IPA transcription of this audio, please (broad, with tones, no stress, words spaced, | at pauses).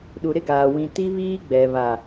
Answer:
ɗu˨ɾɪ˦ɡaː˨ wĩ˨ ti˦βiː˦ɡ͡bɛ˨βa˨